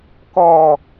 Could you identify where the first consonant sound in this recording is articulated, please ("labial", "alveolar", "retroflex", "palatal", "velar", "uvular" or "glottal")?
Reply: velar